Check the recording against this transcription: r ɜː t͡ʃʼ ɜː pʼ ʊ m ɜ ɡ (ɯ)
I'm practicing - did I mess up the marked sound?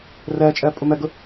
yes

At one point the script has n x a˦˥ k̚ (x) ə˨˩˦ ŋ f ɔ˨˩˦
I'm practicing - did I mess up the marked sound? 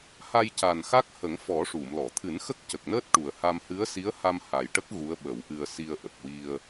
yes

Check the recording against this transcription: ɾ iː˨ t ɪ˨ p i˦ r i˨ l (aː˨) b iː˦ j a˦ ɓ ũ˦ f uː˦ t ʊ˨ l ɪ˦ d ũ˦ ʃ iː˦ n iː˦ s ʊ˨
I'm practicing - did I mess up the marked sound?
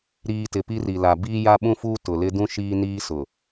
yes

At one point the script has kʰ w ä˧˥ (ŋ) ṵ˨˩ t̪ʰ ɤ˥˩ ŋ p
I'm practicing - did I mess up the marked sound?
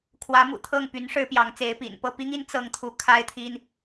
yes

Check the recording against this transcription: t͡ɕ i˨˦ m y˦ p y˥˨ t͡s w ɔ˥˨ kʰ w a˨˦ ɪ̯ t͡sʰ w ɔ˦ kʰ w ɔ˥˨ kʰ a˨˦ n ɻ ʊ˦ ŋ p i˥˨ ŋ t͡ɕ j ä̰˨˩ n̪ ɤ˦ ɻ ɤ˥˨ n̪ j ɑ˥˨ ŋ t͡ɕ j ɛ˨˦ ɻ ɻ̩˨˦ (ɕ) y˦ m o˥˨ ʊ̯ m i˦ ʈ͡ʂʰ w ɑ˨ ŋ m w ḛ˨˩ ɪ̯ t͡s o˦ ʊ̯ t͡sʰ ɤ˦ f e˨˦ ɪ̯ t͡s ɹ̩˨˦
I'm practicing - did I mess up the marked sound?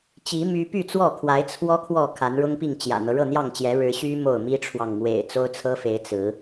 no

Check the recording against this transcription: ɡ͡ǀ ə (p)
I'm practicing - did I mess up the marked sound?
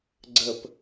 no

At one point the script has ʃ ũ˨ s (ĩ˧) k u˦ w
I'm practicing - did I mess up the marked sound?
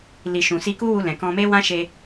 yes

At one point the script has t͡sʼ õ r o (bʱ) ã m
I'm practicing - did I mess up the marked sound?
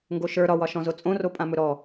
yes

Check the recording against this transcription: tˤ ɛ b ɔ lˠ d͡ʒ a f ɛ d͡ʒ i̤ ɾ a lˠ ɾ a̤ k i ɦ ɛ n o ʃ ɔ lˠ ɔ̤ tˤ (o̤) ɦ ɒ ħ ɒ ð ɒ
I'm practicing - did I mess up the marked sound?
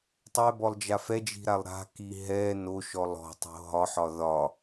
no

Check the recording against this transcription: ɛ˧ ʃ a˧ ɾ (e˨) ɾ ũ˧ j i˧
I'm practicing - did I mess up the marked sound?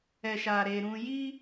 yes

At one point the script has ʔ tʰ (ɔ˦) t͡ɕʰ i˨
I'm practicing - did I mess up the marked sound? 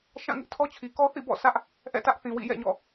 no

